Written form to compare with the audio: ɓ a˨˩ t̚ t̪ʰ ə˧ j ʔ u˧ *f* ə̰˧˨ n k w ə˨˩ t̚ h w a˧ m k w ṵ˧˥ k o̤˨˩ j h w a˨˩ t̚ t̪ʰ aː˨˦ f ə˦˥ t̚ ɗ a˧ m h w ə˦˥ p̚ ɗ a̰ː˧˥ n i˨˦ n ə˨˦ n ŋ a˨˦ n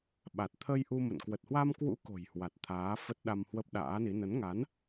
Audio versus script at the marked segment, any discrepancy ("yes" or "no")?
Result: yes